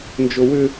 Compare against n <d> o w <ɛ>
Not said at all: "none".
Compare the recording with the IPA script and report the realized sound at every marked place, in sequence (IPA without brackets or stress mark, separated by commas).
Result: d͡ʒ, ʏ